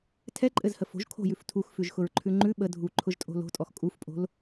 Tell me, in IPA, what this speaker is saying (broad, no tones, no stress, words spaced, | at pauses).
tʰɛǃʼɘzhə fo̤ʒ kʰo̤jʉf tʰuxfʉʒxʊɹǃʰʉ ŋ͡ǃʉ ɓə dʱuǃʰʊʒtʼo̤ lo̤tʼɔx kʼufpʼo̤l